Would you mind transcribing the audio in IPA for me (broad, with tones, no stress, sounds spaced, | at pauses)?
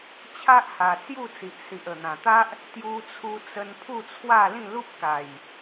t͡ɕʰ a˦ ʔ h a˨˩ t͡s j u˥˧ t͡s i˨ ʔ s i˨ ʔ ə˨˩ n̪ ã˨˩ t̪ a˦ ʔ | t̪ j u˧ t͡sʰ u˧ t͡s ə˧ n pʰ u˥˧ t͡sʰ w a˥˧ l ĩ˥˧ l u˦ p̚ k a˨˩ j